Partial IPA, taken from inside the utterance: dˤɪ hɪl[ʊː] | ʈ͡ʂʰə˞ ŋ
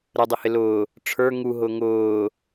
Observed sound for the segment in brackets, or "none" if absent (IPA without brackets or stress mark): ʊː